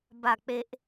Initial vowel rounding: unrounded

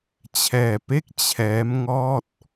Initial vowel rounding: unrounded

